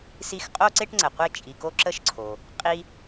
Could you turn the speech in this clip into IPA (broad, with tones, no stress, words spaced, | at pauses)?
si˦x qʼo˥ǀe˥ʈŋ͡ǀə˩qʷe˦ t͡ʃʼi˨ ko˥ǁə˥ʃǀʰo˩ | qʼi˦